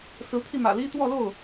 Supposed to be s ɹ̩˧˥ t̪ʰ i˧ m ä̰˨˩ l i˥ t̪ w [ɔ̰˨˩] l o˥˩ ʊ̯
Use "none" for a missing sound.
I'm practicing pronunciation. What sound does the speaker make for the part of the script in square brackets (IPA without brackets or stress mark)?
ɔ˥˧